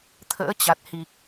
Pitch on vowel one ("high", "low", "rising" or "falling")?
rising